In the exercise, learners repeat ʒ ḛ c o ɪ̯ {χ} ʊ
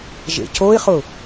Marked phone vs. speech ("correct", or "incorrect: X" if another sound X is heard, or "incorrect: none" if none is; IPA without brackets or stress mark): correct